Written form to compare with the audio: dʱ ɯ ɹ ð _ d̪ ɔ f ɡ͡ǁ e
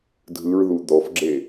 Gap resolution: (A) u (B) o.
A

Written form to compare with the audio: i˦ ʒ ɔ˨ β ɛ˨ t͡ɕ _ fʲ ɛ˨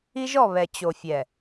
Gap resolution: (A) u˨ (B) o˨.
B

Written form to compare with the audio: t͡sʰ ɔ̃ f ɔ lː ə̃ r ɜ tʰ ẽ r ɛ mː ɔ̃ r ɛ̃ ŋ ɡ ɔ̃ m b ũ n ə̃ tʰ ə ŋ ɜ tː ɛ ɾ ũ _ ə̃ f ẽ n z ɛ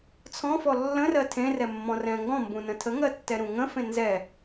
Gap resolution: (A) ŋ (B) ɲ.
A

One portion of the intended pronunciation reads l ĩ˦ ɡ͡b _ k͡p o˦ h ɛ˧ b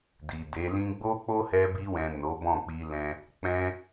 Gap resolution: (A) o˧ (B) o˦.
B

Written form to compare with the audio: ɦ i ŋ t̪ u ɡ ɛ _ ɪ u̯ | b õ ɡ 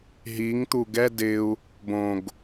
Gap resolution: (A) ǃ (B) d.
B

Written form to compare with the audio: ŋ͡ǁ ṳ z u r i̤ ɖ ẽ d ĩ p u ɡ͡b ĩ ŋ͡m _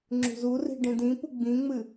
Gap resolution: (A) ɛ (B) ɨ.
B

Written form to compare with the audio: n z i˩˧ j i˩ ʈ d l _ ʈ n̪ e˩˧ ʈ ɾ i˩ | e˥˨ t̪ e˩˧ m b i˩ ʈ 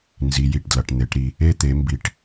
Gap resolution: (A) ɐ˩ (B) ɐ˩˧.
A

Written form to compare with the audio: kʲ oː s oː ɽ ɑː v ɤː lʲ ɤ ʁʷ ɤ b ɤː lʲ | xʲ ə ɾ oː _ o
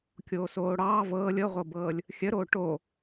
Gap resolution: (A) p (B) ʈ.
B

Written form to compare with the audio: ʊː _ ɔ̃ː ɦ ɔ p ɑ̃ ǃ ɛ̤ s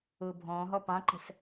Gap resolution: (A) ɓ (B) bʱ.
B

